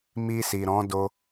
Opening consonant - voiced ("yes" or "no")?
yes